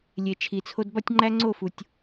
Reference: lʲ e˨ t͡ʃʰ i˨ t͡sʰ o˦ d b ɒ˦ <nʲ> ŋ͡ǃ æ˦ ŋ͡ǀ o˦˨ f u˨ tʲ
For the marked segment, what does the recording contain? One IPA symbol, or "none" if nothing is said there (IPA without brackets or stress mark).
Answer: tʲ